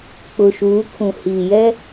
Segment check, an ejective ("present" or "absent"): absent